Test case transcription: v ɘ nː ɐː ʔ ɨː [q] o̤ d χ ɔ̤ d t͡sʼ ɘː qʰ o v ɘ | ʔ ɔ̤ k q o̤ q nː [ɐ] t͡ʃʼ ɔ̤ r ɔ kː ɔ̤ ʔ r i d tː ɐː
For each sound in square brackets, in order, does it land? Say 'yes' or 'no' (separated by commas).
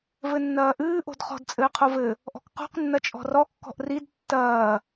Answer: no, yes